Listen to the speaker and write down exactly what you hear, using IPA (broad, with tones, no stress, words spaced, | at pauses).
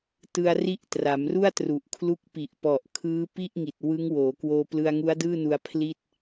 tɯ˧a̯ri˦˥ʔ tra˩˦mru˥˩a̯tru˨˩ʔkʰlu˦˥k̚ pi˨˩ʔpɔ˨˩ʔ kʰɯː˦˥ pi˥˩ʔ ŋi˨˩t̚ wɯ˦˥ŋ woː˩˦kwoː˧ plɯ˧a̯ŋu˦˥a̯dɯː˥˩nu˧a̯ pʰli˥˩t̚